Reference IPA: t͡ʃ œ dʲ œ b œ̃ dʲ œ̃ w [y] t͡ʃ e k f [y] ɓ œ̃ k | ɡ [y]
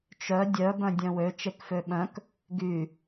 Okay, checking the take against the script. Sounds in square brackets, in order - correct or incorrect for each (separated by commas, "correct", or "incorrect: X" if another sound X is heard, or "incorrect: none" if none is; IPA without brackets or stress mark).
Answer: incorrect: ø, incorrect: ø, correct